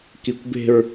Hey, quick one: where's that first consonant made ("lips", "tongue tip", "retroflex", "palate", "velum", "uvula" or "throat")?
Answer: velum